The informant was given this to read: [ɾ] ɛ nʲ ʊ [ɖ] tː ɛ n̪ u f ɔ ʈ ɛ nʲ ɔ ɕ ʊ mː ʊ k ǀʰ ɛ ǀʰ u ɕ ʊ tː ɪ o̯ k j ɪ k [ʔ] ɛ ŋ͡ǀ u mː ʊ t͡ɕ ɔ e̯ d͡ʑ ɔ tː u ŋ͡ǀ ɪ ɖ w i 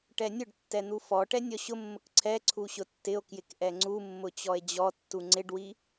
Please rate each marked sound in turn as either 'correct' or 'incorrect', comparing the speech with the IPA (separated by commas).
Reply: incorrect, correct, correct